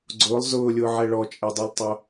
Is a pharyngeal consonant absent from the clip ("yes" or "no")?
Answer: no